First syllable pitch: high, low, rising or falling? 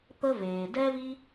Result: high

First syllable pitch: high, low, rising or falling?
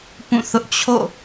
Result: falling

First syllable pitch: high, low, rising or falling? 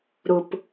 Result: low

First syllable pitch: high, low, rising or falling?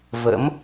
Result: rising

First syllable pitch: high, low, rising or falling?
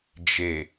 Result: low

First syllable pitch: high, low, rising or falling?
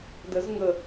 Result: rising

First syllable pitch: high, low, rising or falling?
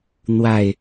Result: low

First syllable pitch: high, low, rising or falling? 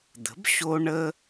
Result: rising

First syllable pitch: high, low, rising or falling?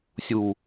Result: low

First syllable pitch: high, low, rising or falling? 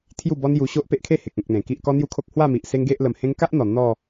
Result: falling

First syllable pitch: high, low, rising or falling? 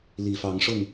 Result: low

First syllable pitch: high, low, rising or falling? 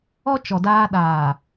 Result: high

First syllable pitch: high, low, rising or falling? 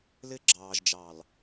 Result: high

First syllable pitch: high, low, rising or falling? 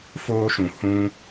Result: high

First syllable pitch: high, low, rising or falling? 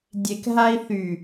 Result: low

